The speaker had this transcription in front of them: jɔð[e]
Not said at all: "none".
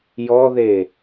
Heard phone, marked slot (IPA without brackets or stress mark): e